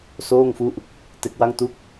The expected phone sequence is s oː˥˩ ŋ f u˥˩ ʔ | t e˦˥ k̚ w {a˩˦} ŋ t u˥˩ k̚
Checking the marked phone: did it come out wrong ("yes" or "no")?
yes